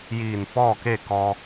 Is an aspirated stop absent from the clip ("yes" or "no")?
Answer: yes